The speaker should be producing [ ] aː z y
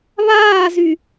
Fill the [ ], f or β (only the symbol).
β